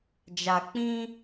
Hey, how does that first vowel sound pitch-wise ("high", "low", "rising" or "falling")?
low